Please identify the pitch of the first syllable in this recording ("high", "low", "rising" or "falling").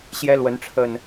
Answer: high